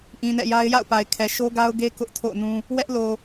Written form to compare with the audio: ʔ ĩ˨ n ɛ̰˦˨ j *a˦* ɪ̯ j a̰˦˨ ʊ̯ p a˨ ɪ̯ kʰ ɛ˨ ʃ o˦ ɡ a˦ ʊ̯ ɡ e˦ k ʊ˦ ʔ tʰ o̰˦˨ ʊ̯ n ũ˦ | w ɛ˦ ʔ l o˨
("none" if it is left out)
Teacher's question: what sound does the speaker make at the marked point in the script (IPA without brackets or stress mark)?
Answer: a˦